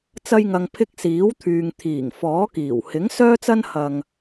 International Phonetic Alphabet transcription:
t͡s ɐ˧ j ŋ ɐ˨ ŋ pʰ ɪ˧ k̚ s iː˨˥ w t̪ʰ yː˨ ŋ t̪ʰ iː˨˩ ŋ f ɔː˨˥ k iː˨˩ w h ɪ˨˥ ŋ s œː˥ t͡s ɐ˥ n h ɐ˧ ŋ

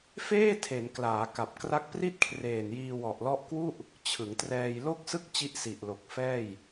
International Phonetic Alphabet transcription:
f eː˥˩ tʰ e˩˦ n k l aː˩˦ k a˨˩ p̚ k r a˦˥ k̚ p r i˥˩ t̚ kʰ r eː˨˩ n j iː˧ w ɔ˨˩ ʔ l ɔ˦˥ ʔ k w u˥˩ ʔ | t͡ɕʰ ɯ˩˦ ŋ t r ɛː˧ j l o˥˩ k̚ s ɯ˥˩ k̚ t͡ɕ i˥˩ ʔ s i˨˩ ʔ l o˨˩ k̚ f ɛː˥˩ j

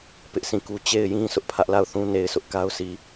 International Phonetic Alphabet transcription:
p ɪ˦ ʔ sʰ ĩ˦˨ k u˦ t͡ɕ e˦˨ ɪ̯ j ĩ˦ sʰ ʊ˦ ʔ pʰ ä˦ ʔ l a˦˨ ʊ̯ θ ũ˦ n e˨ ɪ̯ s ʊ˦ ʔ k a˦ ʊ̯ s i˨

